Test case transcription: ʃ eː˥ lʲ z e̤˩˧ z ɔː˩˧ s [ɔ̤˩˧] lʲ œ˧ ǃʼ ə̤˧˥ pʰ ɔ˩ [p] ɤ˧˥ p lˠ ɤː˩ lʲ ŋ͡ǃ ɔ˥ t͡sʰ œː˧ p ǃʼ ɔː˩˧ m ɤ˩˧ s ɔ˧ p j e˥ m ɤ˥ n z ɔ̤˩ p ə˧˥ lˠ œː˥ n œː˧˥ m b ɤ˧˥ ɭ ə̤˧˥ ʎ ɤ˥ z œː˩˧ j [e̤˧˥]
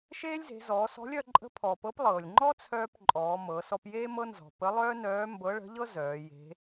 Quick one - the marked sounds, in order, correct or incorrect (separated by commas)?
incorrect, correct, correct